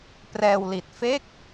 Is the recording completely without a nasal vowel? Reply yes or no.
yes